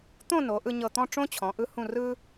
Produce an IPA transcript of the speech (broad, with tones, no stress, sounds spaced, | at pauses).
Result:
t̪ õ˥˧ n o˩˧ ʔ ɯ˧ ɲ ɤ˧˩ t̪ ɔ̃˥˧ ʈ͡ʂ õ˥ t͡ɕʰ ɔ̃˩˧ ʔ ɯ˧ h ũ˧˩ r ɯ˧